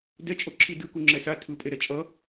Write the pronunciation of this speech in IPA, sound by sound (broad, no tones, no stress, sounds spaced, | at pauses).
d ɛ t͡ʃʼ o ǁʰ i d ɯ k u ŋ͡ǁ ɛ s a tʰ ɯ pʼ e ɾ ɛ t͡ʃʼ ʌ